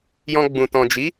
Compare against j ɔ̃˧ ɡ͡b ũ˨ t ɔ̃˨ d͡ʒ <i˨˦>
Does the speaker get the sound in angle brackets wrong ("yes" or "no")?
no